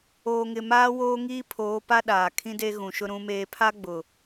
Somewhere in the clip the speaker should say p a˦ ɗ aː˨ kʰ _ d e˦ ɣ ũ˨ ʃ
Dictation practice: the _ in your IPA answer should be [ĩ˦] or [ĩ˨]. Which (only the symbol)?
ĩ˦